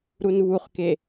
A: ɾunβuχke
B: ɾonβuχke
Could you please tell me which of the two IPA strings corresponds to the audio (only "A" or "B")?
A